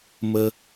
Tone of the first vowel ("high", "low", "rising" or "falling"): high